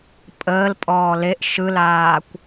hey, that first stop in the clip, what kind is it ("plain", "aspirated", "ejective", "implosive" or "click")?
ejective